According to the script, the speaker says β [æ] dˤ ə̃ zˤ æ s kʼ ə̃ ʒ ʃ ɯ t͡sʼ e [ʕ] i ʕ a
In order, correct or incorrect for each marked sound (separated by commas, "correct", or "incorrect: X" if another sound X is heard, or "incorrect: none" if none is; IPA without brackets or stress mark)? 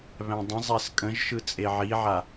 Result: incorrect: æ̃, correct